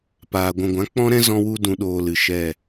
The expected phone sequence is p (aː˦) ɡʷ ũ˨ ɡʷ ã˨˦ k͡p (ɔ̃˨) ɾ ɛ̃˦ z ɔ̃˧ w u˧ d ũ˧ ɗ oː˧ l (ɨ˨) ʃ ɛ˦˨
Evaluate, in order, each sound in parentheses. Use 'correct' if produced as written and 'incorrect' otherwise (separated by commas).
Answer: incorrect, incorrect, correct